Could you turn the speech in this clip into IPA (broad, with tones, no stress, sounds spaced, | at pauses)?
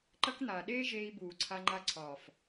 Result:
ǃ ɐ˦ k n̪ aː˨ ɗ eː˦ ʒ eː˧ i̯ b uː˨ ǀʰ a˧ ŋ͡ǃ a˧ ǀʰ ɒː˨ f